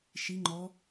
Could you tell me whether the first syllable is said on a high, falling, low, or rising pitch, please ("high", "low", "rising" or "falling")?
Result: rising